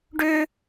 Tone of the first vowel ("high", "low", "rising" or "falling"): high